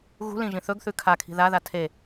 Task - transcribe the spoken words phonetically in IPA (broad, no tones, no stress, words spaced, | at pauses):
ɣṳlĩʒĩ θɵɡθʉ kʰakʰi̤ ðaða tʰe